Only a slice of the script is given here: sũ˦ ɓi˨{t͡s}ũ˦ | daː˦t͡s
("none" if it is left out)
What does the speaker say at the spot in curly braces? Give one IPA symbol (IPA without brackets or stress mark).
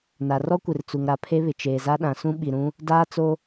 ɾ